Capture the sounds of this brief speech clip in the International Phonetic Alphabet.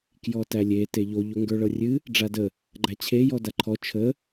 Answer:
k j ɔ t æ lʲ e t e ʎ o ʎ o ŋ ɡ ə˞ ɭ ɤ rʲ ɨ | ɖ͡ʐ a d ə | ɡ͡ǃ æ t͡ɕʰ e j ɔ d a ǃʰ ɔ t͡ʃʰ ə

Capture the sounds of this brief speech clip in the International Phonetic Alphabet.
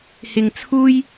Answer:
h ɪ˧ ŋ t͡sʰ uː˥ j

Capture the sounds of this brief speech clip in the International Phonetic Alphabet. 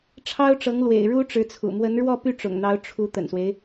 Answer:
ʈ͡ʂʰ ɑ˥ ʊ̯ ʈ͡ʂ ɤ˧˥ ŋ l w ḛ˨˩ ɪ̯ ɻ u˥ ʈ͡ʂ ɻ̩˧˥ t͡sʰ ṵ˨˩ m w ə˧˥ n ɻ w ɔ˥˧ p y˥˩ ʈ͡ʂ ʊ̰˨˩ ŋ n̪ ɑ˧˥ ʊ̯ ʈ͡ʂʰ u˧˥ t̪ ə̰˨˩ n s w e˦ ɪ̯

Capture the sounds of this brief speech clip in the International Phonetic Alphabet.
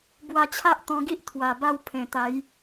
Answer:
b w a˧ t͡ɕʰ a˦ ʔ t̪ ɔ̃˧ ɡ i˦ ʔ t̪ʰ w a˨˩ b a˥˧ w pʰ ẽ˨˩ t̪ a˨˦ j

